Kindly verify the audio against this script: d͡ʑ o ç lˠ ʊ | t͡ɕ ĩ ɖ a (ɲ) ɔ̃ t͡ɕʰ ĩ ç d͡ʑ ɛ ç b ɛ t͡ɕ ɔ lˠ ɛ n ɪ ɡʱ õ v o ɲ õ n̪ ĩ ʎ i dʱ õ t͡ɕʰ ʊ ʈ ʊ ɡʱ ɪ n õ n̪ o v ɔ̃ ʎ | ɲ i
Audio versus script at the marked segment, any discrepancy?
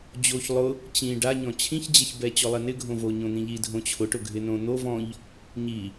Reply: no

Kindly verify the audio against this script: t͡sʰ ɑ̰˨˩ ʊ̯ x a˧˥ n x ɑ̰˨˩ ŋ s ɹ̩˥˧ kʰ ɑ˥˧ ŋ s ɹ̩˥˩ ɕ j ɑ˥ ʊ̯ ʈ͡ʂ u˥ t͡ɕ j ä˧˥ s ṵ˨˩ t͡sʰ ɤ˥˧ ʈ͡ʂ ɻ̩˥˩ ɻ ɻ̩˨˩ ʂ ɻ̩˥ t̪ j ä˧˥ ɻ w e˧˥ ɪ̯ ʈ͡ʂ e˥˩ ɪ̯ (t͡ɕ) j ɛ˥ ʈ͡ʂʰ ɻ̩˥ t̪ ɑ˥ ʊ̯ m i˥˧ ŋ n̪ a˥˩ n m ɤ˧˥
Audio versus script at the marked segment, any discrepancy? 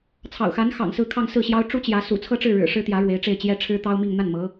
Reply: no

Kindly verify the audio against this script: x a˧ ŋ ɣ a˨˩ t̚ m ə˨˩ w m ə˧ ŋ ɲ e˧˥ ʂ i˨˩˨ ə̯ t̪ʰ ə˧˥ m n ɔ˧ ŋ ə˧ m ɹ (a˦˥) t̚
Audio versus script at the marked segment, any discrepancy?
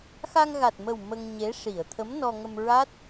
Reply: no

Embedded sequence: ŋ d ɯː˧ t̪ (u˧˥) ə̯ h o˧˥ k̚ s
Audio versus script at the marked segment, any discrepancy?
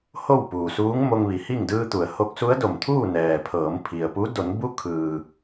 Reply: yes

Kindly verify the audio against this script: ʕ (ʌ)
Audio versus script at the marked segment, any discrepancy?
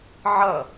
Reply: no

